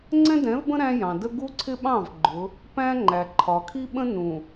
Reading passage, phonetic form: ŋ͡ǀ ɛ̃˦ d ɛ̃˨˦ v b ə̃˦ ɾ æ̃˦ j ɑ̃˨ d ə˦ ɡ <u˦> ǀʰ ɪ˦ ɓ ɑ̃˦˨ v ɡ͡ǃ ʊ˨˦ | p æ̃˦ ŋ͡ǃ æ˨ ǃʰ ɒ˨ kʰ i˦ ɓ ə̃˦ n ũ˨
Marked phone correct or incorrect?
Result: correct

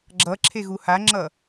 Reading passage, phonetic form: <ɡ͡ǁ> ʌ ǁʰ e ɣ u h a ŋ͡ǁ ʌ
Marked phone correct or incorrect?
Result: correct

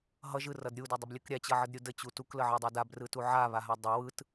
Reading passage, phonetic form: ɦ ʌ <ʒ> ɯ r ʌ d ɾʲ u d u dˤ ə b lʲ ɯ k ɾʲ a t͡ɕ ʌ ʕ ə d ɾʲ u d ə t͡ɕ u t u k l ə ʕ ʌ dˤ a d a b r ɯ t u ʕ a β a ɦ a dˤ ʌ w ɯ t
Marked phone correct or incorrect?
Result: correct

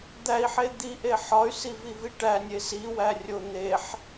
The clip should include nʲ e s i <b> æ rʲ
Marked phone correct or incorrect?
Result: incorrect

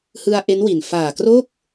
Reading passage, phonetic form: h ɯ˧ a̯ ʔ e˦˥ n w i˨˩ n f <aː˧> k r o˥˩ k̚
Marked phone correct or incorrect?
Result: incorrect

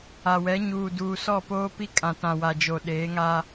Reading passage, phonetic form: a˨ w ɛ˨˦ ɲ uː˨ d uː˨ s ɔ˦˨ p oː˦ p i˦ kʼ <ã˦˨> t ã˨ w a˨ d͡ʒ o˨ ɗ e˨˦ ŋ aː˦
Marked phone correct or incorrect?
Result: incorrect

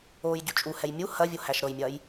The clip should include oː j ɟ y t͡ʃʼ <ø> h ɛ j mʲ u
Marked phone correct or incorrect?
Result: incorrect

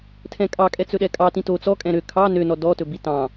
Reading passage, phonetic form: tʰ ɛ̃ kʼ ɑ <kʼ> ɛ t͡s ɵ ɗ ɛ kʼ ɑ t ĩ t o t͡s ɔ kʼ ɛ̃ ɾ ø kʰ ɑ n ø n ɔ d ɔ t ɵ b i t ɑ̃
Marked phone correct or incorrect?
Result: correct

